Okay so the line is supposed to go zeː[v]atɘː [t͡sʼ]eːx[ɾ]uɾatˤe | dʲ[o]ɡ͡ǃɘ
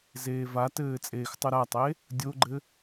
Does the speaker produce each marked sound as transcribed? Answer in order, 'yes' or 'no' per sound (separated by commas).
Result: yes, yes, no, yes